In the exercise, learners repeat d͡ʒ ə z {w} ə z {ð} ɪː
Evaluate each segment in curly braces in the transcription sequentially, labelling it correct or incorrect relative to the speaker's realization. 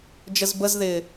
incorrect: b, correct

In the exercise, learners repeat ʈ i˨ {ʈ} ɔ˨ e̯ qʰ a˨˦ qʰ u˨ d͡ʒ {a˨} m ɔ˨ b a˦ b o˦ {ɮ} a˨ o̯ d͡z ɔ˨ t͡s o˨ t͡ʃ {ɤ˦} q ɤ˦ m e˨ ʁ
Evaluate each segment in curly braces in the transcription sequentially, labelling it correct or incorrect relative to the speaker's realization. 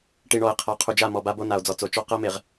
incorrect: ɳ, incorrect: a˦˨, incorrect: n, incorrect: ɔ˦

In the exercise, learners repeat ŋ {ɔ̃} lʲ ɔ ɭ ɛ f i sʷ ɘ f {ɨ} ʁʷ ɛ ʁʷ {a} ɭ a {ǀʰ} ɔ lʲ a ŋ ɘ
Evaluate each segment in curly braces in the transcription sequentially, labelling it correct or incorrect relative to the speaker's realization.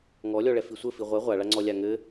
incorrect: ɔ, incorrect: i, correct, incorrect: ŋ͡ǀ

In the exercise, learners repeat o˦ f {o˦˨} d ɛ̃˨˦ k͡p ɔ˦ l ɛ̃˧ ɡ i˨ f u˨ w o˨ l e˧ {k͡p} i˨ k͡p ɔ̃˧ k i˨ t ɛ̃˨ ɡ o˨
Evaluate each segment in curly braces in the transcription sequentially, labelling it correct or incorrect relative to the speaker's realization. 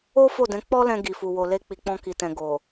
correct, correct

